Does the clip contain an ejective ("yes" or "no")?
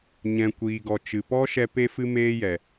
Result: no